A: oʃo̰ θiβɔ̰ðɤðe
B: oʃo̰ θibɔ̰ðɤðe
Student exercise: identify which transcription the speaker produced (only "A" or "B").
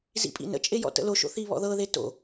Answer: A